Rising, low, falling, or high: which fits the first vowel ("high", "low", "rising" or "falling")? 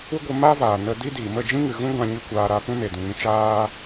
high